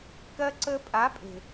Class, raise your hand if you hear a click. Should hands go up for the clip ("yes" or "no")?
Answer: yes